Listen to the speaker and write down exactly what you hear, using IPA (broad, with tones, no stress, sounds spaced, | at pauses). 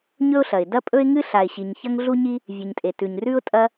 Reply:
ɲ ɵ˥ ʊ̯ ɬ ɐ˩ ɪ̯ d ɐ˥ pʼ ɵ˥ ɪ̯ ŋ ɨ˥ ɬ a˩ ɪ̯ ɕ i˩ ɲ ç ɐ˥ ŋ ɮ u˥ ɲ i˥ | vʲ ɨ˩ ɲ tʼ e˩ t ʉ˩ ɲ r ʉ˥ ʊ̯ tʼ ɐ˥